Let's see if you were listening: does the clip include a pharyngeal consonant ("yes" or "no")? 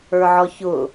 yes